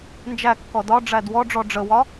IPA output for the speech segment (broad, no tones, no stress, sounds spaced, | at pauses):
n d͡ʒ æ kː ɔ d ɒ ɖ͡ʐ æ d w ɔ ɖ͡ʐ ɔ ɖ͡ʐ ə w ɒ